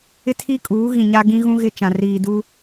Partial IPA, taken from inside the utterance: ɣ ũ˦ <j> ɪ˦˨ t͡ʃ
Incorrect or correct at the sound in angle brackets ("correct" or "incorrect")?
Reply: incorrect